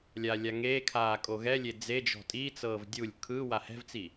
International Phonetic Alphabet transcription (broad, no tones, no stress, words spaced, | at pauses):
lʲalʲaŋekʰaː kʼoɣɛlʲe d͡zed͡ʒɔ̤ tʼit͡sɤːv dʲulʲ kʰɯ wahɛ̤vt͡si